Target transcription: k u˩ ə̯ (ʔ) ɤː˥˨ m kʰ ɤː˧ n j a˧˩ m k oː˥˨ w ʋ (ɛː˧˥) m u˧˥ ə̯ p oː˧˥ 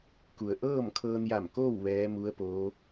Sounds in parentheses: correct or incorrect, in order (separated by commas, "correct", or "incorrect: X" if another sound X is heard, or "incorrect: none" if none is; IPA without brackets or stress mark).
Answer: correct, correct